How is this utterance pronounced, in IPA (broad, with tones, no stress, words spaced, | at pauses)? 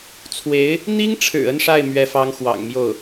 t͡sʰwe˧˥ɪ̯ | n̪i˥ŋʈ͡ʂʰɻ̩˨˩ ə˥˧nʂa˥˩ɪ̯ mɥɛ˧˥fɑ˧˥ŋxwɑ̰˨˩ŋmjo˥˩ʊ̯